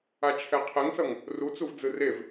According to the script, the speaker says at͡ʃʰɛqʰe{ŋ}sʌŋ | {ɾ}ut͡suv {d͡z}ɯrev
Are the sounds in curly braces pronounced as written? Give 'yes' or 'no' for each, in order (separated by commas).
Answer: yes, no, yes